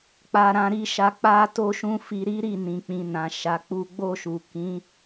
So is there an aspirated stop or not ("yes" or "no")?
no